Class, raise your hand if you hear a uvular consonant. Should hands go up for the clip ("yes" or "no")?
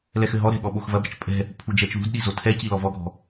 no